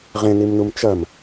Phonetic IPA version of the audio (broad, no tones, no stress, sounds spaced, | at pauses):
ʁ ẽ n i m n u m t͡ʃ ɐ m